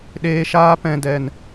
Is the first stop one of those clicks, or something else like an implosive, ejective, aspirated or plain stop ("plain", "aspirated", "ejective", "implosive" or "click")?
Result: implosive